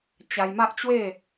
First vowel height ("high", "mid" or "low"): low